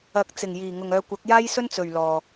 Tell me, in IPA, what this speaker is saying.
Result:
ɐ˨˥k̚ t͡sɪ˨˩ŋjiː˨˩ŋʊ˨ŋœː˧ kʷɐ˨˥k̚jaː˥jsɵ˥nt͡sɵ˨ɥ lɔː˧

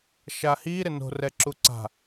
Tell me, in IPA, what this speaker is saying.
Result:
ʃahi ɾɪno̤rɛ ǁuǀa̤

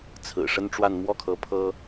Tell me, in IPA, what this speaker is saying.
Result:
t͡sʰɹ̩˨˩ʂə˥nʈ͡ʂwa˥˧n mwɔ˥˩kʰɤ˧˥ pʰɤ˥

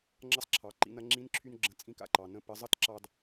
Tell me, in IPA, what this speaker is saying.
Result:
ŋ͡ǁʌ˧sˤǁʰɑ˩ǃḭ˩˧nɐ˩˧ ŋ͡ǁĩ˧˥nǁʰy˧nɡ͡ǁə̃˩˧ t͡sʼĩ˧ka̰˩ǃɑ˩ nə̃˧pə˩˧zˤʌ˥t ǁɑ˧d

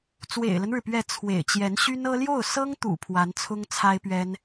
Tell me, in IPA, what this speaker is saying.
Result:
t͡swḛ˨˩ɪ̯lə˦nɻɻ̩˩pɥɛ˧˥ t͡sʰwḛ˨˩ɪ̯t͡ɕjɛ˧˥nɕy˥nɤ˥ ljo˥˩ʊ̯sɤ˥ŋt̪ṵ˨˩ pʰwa˧˥nt͡sʰʊ˥ŋt͡sʰa˥ɪ̯pɥɛ˥n

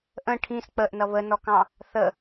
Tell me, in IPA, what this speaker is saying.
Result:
ʔə̃ ʈʰĩs k͡pəʔnʌ βənɔkɑ̃ | θə

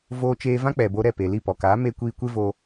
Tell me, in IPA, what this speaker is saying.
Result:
voː˧t͡ʃeː˧vã˦ k͡pɛ˨bo˧ɾɛ˦˨pe˨ li˦˨pɔ˨kaː˨˦ me˦ kʷiː˧kʷe˦vo˧

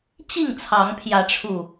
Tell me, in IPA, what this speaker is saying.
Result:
t͡ɕi˥˨ŋt͡sʰɑ˨˦ŋpʰjä˨˦ʈ͡ʂʰu˨˩

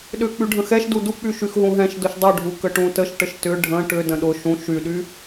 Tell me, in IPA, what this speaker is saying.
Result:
ɗʏ k͡pyɖʱə̃xɛʃdu duk͡py ʃyxɦũɦɛ̃ʃ dʊʃdˤyɖʱu kəʈũtəʃʈəʃ tʏ ɖʱə̃ ʈʏ də̃ɗʊ ʃũ ʃyɗy

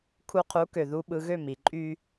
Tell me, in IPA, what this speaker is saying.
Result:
kʰu˧qʰu˩˥ kø˩ ðu˧ɓɯ˧ɣø˥˩m i˩ǃʼy˥

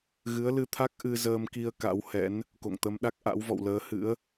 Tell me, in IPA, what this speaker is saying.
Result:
ɣɨ˨˦ə̯lɨ˧t̪ʰa˦˥k̚ ʔɨ˧ zəː˧mki˧ə̯ ka̰˧˥whɛ̰˧˥n | ko̰˧˨ŋt̪ə˨˦mɗa˦˥k̚ ʔa̰˧˥wvɔ̰˧˨wləː˨˦ hɨ̰˧˥ə̯

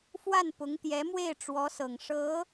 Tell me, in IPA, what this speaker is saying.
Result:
fwa˥˩npʊ˧˥ŋt̪jɛ˧˥mwe˥˩ɪ̯ ʈ͡ʂwɔ˧˥sɤ˨˩ŋʂɤ˧˥

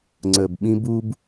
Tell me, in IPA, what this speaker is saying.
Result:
ŋ͡ǀəː˨bɓĩ˦b u˦b

